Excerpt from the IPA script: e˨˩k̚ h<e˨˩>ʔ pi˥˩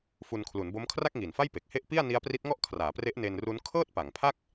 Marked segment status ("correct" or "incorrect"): incorrect